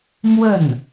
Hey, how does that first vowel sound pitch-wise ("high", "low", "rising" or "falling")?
falling